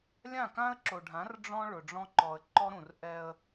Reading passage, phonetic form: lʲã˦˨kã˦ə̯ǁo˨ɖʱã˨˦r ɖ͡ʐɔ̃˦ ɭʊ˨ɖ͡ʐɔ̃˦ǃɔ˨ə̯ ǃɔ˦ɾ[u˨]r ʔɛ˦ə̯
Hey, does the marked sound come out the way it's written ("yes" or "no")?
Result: no